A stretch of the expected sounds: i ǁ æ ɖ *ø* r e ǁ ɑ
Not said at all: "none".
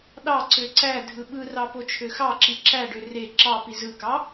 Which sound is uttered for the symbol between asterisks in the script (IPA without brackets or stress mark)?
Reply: ø